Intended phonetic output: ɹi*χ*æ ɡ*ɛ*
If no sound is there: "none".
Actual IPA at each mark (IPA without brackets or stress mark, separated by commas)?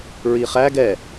χ, ɛ